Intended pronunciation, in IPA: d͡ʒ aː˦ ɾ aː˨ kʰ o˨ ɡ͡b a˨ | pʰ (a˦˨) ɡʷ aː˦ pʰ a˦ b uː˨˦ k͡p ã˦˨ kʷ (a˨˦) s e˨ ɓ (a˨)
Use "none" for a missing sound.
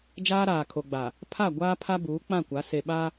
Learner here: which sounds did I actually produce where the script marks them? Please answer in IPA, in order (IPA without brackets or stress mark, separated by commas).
a˦˨, a˨˦, a˦